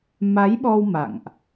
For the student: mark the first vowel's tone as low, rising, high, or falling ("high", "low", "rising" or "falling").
rising